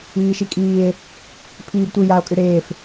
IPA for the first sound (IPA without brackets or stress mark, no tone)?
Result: iː